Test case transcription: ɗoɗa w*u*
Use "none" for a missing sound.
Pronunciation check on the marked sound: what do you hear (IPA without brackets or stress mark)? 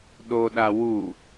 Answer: u